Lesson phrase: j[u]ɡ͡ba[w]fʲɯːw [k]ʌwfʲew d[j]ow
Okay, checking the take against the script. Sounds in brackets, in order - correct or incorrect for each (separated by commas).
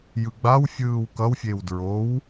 incorrect, correct, correct, incorrect